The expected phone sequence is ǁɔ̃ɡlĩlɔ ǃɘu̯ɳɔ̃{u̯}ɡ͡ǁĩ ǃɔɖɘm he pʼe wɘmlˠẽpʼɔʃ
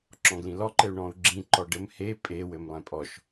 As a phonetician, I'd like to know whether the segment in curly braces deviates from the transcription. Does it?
no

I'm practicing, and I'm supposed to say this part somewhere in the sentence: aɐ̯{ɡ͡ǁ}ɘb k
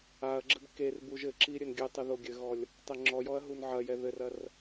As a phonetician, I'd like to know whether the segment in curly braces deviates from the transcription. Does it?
no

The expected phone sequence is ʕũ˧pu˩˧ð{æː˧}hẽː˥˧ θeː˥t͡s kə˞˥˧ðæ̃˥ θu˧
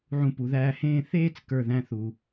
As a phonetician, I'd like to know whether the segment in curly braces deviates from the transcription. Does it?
no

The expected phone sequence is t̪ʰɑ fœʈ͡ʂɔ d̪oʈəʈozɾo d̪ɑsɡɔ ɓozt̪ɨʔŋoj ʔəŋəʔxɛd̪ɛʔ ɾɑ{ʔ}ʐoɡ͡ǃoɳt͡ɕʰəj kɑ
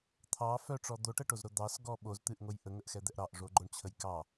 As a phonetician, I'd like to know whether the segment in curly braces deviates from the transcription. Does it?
no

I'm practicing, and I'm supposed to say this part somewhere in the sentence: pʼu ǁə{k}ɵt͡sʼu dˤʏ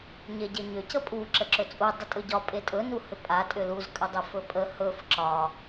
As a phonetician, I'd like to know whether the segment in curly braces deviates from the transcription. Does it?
yes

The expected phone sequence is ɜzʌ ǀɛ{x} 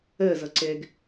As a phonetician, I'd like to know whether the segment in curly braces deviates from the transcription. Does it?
yes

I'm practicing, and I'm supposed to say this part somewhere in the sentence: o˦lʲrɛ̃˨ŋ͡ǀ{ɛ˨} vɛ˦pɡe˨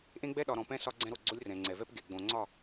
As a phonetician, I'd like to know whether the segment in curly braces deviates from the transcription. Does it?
no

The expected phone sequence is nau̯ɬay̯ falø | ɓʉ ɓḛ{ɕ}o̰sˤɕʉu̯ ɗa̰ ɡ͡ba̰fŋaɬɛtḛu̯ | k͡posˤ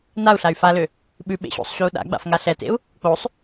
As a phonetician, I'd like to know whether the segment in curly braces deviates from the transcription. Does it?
no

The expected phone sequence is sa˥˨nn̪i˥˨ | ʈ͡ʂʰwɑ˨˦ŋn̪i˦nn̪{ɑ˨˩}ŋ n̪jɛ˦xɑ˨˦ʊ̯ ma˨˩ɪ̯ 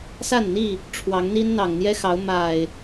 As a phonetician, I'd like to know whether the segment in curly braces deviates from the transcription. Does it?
no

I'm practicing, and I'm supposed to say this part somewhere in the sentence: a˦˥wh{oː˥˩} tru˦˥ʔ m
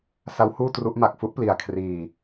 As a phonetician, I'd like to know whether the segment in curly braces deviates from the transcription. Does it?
yes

